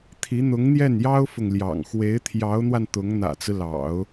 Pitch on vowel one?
rising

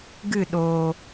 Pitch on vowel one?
falling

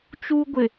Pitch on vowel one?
high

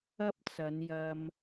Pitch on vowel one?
high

